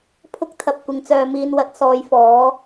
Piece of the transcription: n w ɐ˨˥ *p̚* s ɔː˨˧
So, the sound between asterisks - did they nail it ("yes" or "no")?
no